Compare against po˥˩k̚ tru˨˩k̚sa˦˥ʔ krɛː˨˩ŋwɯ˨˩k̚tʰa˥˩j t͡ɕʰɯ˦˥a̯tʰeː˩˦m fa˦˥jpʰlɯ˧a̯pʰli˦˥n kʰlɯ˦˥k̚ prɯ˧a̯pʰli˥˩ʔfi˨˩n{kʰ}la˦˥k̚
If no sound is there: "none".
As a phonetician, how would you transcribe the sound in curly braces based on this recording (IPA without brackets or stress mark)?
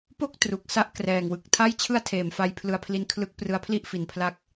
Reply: pʰ